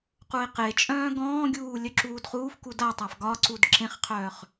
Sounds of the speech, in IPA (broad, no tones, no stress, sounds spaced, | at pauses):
q u i̯ q e t͡ʃʼ œ̃ː ɡ ɔ̃ː ɡʲ uː lʲ œ ǁ uː d χ uː f k u d a tˤ a f ɡ ɒ ǀ u d ǁ ẽ χ qʰ œː χ